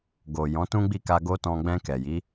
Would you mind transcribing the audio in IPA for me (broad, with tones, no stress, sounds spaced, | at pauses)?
ɡ o˨ j ɔ̃˨˦ t ũ˦ ɡ͡b i˦˨ k a˧ ɡ o˦ t ɔ̃˧ ɡ͡b ɛ̃˧ k ɛ˨ j i˨˦